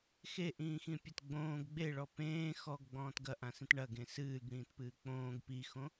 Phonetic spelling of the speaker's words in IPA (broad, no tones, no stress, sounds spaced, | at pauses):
x e ʔ ĩː x ĩ pʲ ɐ t ɡ͡b õː ɡ ɡ͡b e ɭ ɔ p ẽː x ɔ ɡ ɡ͡b ɔ̃ː t ɡ ɐ ʔ ã s ĩ t ɳ ɐ ɡ ẽ s ɨː ɡ ɽ ĩː t p ɨː k͡p õː ɡ p i x õ